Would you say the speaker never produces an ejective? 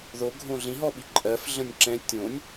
no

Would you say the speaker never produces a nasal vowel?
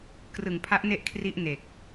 yes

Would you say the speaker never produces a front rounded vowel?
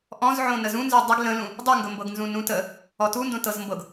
yes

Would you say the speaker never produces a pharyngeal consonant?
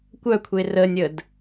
yes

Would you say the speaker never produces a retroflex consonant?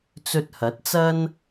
yes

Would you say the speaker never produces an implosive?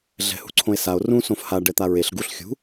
yes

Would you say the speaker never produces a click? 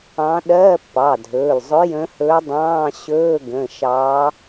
yes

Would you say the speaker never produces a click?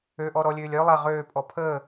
yes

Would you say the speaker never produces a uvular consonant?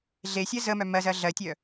yes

